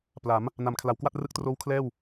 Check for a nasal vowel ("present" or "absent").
absent